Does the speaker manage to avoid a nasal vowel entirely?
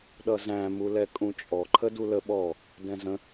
no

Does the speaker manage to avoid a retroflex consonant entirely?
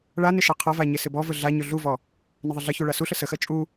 no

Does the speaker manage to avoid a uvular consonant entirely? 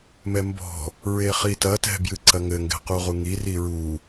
no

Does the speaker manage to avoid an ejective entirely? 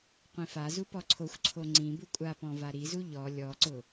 no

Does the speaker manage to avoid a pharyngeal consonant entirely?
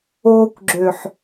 no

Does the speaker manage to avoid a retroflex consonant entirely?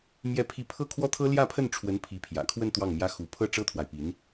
no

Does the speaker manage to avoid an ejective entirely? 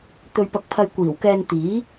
yes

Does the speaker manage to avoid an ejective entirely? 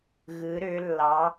yes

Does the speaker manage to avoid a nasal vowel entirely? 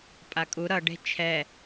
yes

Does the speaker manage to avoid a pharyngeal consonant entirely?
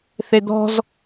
yes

